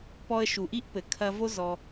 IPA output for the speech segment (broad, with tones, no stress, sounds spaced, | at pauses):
p ɔ˧ ə̯ ʃ u˨ ʔ i˦ ʔ p ɘ˨ kʰ ɐ˧ v o˦ z ɔ˧